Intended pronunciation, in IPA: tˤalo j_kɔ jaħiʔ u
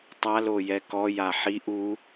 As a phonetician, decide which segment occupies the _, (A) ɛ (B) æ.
A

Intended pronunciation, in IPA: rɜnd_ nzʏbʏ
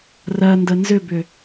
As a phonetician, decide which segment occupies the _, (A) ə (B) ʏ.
A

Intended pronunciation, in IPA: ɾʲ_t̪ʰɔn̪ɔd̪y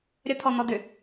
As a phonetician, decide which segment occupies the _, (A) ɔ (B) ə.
B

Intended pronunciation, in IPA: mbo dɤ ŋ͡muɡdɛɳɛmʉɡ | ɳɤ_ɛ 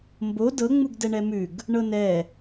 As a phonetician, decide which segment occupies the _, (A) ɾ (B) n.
B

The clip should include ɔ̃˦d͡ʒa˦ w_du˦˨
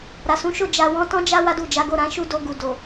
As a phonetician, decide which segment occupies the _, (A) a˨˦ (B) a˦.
B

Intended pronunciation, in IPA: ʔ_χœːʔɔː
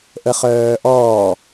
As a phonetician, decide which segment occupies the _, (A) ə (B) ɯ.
A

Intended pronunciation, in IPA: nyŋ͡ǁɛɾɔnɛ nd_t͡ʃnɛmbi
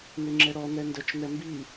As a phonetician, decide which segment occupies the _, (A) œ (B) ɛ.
A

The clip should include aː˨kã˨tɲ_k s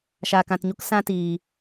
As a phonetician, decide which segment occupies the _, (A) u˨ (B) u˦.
B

